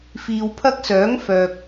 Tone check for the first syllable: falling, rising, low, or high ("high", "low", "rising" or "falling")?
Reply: low